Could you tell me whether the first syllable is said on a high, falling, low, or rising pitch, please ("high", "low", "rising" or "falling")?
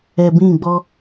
low